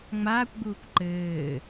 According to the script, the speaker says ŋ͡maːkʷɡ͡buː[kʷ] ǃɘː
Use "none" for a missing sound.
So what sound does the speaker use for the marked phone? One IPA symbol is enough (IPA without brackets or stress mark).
kʷ